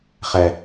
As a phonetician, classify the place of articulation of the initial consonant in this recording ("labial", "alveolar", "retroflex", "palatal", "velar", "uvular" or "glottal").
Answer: uvular